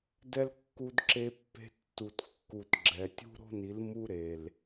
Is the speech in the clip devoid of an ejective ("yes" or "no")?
yes